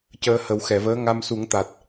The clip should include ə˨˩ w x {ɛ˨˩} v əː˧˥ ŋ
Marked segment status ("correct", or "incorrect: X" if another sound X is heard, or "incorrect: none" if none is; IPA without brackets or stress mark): incorrect: ɛ˨˩˨